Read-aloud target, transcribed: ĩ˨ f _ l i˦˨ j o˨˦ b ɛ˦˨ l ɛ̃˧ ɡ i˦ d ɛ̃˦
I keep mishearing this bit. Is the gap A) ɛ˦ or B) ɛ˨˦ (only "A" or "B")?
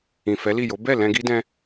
B